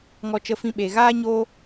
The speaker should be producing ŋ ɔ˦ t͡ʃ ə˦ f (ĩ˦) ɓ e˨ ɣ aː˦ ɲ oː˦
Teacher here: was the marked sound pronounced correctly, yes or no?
yes